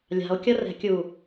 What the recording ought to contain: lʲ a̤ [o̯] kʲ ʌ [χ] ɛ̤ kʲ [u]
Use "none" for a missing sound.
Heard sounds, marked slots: o̯, r, u

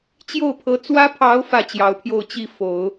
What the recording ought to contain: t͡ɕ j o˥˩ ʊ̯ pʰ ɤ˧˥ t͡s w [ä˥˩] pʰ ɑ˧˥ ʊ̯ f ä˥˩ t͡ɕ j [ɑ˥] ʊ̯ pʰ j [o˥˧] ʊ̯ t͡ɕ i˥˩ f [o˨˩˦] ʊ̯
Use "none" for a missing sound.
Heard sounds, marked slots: ä˥, ɑ˧˥, o˥˧, o˨˩˦

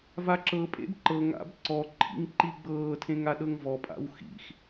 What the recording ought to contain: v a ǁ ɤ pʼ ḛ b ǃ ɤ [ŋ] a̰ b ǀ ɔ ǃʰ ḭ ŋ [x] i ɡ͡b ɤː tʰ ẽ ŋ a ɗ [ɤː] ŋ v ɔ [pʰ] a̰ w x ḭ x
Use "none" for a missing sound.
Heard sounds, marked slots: ŋ, ǃ, ɤ, pʼ

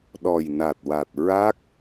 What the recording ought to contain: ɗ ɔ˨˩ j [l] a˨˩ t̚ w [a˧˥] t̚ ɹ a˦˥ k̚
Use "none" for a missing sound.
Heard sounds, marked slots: n, a˨˩

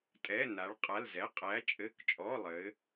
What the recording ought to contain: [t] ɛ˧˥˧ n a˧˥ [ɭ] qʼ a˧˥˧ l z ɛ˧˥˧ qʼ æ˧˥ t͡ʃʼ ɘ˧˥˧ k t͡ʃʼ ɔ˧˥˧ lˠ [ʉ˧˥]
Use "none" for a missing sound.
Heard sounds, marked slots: tʼ, ɭ, ɘ˧˥

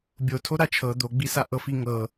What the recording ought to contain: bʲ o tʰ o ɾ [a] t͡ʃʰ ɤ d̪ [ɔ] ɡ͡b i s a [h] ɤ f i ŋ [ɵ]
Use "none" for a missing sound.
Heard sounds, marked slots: a, o, ʔ, ɤ

